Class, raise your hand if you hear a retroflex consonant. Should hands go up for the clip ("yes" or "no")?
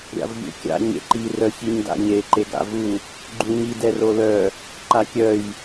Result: no